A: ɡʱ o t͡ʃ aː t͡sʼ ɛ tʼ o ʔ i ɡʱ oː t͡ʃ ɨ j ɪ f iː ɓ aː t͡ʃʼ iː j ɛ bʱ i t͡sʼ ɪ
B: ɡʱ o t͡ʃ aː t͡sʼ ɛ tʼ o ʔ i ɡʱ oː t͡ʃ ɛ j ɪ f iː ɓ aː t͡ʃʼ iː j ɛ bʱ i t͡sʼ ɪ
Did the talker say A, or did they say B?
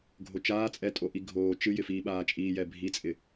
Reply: A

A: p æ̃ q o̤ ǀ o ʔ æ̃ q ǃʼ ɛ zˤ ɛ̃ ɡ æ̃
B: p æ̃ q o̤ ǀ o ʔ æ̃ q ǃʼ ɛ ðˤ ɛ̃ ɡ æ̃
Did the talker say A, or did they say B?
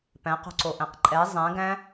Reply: A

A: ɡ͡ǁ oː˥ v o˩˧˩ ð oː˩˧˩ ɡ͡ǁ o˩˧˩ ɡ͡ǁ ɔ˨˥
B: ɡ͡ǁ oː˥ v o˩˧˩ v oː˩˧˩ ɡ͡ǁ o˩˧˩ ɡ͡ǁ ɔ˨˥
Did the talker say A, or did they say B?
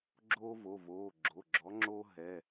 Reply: B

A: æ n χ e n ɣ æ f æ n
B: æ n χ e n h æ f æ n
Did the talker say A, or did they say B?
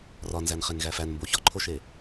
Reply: A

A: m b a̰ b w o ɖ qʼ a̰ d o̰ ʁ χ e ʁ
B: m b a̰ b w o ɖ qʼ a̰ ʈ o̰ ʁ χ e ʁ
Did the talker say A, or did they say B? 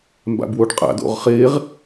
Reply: A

